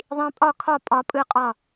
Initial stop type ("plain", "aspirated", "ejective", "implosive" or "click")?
ejective